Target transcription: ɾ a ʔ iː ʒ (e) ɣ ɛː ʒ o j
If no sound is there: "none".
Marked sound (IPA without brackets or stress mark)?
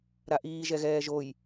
ɛ